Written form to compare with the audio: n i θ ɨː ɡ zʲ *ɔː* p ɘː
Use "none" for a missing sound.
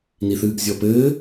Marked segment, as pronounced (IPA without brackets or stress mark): ɔ